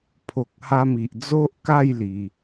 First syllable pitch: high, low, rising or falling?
low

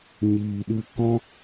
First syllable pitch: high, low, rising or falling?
low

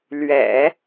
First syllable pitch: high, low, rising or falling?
low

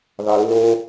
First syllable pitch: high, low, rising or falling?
low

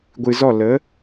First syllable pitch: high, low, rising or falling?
low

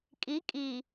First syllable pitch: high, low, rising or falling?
rising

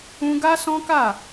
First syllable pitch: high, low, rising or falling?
high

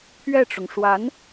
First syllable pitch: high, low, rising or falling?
falling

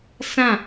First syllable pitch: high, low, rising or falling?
falling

